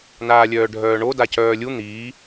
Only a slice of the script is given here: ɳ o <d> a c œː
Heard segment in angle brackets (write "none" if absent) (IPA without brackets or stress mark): d